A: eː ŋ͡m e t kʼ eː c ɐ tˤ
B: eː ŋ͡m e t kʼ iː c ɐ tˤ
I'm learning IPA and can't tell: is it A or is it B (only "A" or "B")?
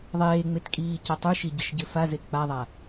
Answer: B